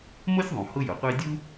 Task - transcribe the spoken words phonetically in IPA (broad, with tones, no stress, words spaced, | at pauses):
mo˥sʲðˤũ˩ hʊ˥jʊ˩qʷe˥ dʲu˥